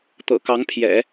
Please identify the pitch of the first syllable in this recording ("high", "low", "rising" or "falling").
low